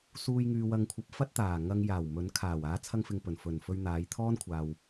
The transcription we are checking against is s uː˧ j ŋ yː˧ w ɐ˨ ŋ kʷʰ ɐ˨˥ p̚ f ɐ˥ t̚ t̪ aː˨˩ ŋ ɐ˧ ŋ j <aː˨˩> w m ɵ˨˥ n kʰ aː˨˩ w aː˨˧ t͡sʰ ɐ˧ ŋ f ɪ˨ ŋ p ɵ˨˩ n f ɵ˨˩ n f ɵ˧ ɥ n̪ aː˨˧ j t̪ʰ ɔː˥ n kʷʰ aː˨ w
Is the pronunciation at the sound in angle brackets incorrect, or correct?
correct